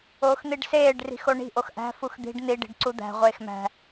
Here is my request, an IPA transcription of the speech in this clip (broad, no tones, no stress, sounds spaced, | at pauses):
oː x n̪ i ɖ s eː ɖ r i̤ x o ɳ i̤ ʔ o x ʔ æ̤ f u x d̪ i̤ ɖ n̪ i ɖ i̤ ɖ ǀ u d̪ æ̤ ʁʷ eː x m æ̤